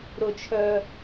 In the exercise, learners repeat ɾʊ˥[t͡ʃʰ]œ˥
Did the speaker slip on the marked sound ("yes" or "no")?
no